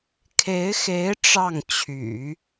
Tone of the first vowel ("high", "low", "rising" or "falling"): rising